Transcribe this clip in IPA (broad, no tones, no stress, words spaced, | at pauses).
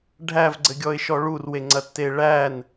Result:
ɖʱævɡ͡ǀɘɡʲɔɪ̯ʃɔ ɭurweŋ͡ǀɐtːe ɭæn